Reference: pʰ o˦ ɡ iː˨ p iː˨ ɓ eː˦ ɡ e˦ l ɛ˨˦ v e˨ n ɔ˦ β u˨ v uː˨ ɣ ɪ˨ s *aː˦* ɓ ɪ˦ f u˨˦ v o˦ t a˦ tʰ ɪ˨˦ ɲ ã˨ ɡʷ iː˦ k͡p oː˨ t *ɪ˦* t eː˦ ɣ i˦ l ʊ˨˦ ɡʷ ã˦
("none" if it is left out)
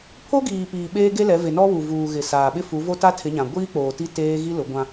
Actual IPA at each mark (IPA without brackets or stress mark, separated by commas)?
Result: aː˨, i˦